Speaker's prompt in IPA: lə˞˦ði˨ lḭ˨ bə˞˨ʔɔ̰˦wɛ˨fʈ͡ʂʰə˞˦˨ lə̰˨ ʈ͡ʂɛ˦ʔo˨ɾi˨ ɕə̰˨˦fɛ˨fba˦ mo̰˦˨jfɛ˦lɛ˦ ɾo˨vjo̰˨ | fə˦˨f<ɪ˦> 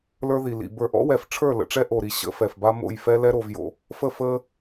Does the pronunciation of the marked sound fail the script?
yes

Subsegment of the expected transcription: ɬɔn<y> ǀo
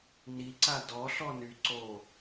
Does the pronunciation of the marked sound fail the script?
no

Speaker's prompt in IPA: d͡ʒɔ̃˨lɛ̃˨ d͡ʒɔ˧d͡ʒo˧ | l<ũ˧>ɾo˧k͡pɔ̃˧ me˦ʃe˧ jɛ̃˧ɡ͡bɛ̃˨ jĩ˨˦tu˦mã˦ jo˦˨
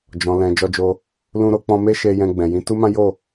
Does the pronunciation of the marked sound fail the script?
no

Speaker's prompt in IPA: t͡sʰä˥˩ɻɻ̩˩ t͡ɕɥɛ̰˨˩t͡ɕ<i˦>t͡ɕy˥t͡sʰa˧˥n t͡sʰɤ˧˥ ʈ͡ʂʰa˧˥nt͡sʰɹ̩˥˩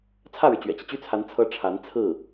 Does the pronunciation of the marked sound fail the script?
no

